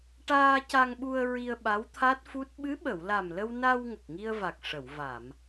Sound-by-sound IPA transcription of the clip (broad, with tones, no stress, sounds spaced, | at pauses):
ʈ aː˧ c a˧ ŋ ɓ u˧ ə̯ ɹ i˧ ə̯ ɓ a˧˥ w t̪ʰ a˦˥ t̚ f u˦˥ t̚ ɓ ɨ˧˥ ɓ ə˨˩˨ w l a˨˩ m l ə˧ w n a˧ w ŋ ə˨˩ k̚ ŋ i˧ ə̯ v a˨˩ k̚ ʂ ə˨˩˨ w v a˨˩˨ m